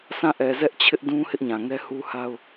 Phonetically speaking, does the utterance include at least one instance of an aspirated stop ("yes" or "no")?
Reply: yes